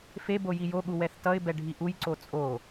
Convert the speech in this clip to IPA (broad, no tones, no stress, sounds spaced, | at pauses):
f e b o j i j o ɠ u w ɛ θ t ʌ ɪ̯ b ɛ ɖʱ i ʔ u j ǀ o t͡sʼ o